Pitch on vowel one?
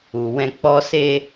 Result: low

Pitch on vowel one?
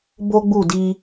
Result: high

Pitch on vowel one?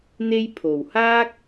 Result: high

